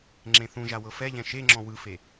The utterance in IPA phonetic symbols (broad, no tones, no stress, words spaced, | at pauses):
ŋ͡ǁẽθũʒa wɤfɛʎɛ̃ ʃeŋ͡ǁɔ̃ wɯfe